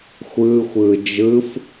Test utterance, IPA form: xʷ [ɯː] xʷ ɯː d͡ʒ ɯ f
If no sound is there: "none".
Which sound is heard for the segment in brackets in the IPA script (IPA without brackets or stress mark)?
ɯː